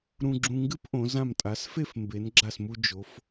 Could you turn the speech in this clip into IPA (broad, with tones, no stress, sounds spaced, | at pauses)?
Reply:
ɾ ũ˧ ɡ͡ǁ ũ˧ ŋ ɡ ɨ˥ p ʔ õ˩˧ z ã˧˩ m tʼ a˩˧ s f e˥˧ f m b e˩˧ n ɡ͡ǁ a˧˩ s m u˧ d͡ʒ o˩˧ f